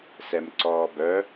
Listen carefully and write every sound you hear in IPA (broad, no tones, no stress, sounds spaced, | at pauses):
s ɛ m ǀ ɔː b œ